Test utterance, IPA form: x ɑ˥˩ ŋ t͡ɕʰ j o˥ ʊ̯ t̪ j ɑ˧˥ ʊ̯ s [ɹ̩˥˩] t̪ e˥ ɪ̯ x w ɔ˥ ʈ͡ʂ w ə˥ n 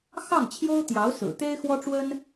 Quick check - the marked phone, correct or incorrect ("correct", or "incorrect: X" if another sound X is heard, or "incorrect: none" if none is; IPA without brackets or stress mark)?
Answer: incorrect: ɹ̩˨˩